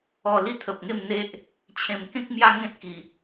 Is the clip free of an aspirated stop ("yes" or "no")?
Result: no